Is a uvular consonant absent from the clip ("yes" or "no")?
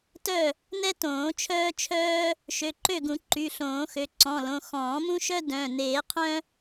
no